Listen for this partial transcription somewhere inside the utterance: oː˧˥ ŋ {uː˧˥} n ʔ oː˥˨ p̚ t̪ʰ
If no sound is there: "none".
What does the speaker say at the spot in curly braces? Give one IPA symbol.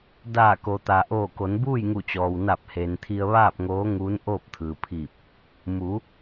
uː˧˥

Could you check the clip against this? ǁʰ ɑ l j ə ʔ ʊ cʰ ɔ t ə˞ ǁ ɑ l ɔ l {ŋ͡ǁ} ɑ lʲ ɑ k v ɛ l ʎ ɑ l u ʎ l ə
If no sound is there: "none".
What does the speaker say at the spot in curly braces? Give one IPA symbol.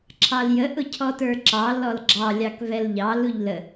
ɡ͡ǁ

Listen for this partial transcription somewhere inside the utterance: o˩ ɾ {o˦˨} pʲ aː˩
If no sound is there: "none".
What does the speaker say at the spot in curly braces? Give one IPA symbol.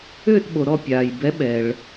ɔ˦˨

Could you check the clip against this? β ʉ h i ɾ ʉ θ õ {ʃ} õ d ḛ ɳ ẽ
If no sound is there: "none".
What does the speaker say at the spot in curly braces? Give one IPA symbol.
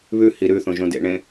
ʒ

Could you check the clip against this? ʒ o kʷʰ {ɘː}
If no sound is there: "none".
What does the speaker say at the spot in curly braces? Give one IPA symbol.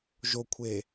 eː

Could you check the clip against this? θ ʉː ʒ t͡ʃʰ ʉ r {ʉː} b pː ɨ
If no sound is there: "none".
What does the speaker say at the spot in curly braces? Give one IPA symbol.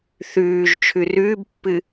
ʉː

